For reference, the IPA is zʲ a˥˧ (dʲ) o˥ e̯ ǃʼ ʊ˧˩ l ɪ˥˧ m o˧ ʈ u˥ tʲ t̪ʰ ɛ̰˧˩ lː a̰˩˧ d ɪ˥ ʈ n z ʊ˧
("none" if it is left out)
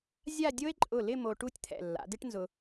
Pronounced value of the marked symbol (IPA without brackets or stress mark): dʲ